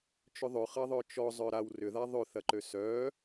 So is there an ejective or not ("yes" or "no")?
no